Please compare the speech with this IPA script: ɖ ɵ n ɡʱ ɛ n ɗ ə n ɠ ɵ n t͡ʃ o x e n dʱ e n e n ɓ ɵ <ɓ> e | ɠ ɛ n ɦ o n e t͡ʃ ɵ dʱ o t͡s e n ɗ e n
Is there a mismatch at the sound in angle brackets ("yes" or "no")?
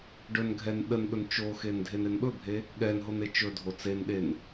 yes